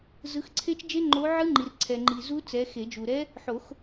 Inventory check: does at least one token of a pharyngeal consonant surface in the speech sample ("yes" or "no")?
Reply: yes